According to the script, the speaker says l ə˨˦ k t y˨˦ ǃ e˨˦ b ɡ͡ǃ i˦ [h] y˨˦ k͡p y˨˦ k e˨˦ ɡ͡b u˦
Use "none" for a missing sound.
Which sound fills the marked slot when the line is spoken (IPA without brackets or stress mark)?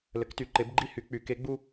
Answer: h